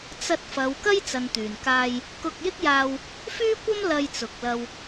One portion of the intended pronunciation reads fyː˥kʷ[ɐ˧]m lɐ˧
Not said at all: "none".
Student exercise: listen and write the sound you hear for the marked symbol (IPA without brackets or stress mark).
ɐ˥